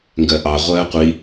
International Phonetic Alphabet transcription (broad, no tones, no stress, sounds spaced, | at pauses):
ŋ ɡ ɜ ʔ ɑ ʁʷ ɜː qʷ i